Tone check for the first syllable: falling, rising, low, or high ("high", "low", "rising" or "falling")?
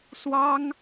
high